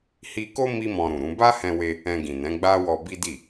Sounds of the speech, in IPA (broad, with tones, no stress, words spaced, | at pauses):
hi˧ko˦ mi˦mɔ̃˧ɾũ˨ɾũ˨˦ ba˦hɛ̃˧we˧ | ɛ̃˧ɡĩ˨nɛ̃˨˦ ɡ͡ba˦wɔ˧ bi˦di˦˨